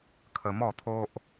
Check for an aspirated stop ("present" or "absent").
present